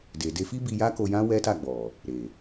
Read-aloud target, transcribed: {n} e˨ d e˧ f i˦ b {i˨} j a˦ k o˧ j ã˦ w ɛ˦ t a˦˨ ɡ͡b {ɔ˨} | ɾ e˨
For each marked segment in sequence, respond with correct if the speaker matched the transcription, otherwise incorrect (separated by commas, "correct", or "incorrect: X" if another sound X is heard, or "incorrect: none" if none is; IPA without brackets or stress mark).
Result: incorrect: d, incorrect: i˧, correct